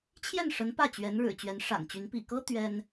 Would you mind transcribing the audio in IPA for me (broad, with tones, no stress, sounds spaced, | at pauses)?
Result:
t͡ɕʰ j ɛ˥˩ n ʂ ə˧˥ n p ä˥˩ t͡ɕ ɥ ɛ˧˥ n ɻ ɻ̩˨˩ t͡ɕ ɥ ɛ˧˥ n ʂ a̰˨˩ n t͡ɕ y˧˥ n p ḭ˨˩ k ɤ˥ t̪ ɥ ɛ˥ n